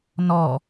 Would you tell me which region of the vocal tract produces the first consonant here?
tongue tip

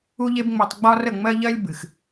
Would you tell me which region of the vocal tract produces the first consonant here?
palate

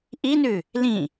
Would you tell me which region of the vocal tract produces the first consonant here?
throat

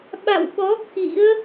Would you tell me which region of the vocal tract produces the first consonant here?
lips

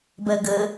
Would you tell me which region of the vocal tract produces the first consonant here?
lips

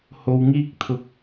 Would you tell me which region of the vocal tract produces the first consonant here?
throat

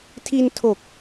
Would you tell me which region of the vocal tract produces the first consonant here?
tongue tip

